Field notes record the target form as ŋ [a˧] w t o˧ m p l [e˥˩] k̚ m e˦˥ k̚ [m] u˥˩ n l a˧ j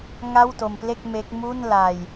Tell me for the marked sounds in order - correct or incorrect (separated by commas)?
incorrect, correct, correct